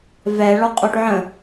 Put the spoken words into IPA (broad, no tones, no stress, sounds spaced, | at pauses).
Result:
v ɛ ɭ ɔ qʼ o ʈ ʕ ə̃